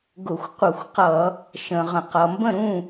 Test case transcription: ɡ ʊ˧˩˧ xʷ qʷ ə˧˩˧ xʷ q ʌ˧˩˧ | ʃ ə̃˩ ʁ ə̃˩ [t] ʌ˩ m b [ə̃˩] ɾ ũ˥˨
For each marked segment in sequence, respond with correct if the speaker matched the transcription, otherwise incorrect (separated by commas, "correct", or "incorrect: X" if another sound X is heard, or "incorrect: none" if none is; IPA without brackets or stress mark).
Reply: incorrect: q, incorrect: ə̃˥˨